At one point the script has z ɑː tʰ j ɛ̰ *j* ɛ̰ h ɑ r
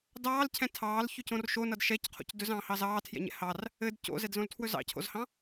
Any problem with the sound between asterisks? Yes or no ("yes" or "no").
yes